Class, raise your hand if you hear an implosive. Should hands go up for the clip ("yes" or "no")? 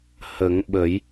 yes